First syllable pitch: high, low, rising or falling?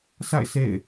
falling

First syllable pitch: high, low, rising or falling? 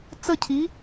falling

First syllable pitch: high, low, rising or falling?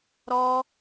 high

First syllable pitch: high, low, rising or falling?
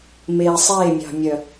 low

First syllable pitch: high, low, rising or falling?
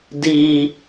low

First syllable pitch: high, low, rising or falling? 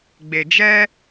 low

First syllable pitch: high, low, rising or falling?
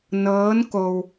rising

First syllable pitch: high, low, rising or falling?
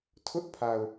high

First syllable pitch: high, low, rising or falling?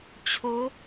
rising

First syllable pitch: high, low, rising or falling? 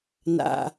low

